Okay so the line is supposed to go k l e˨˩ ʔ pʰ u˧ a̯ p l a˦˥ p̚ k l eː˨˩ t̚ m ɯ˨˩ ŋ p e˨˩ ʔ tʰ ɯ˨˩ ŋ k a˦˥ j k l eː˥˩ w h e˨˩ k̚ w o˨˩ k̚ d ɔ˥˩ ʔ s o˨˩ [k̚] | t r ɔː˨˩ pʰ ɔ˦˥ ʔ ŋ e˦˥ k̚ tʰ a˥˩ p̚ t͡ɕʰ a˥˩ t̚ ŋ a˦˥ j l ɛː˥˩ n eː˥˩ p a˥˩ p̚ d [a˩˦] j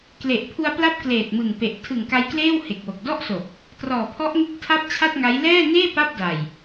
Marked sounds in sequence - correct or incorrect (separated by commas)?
correct, incorrect